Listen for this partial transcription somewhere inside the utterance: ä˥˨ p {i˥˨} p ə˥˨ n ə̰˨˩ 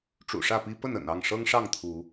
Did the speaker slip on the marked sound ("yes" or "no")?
yes